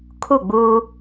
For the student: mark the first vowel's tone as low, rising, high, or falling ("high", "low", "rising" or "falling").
falling